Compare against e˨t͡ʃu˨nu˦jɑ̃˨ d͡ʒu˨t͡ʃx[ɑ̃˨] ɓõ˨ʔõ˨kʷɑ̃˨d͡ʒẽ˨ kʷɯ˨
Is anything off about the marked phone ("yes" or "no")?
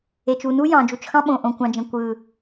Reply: yes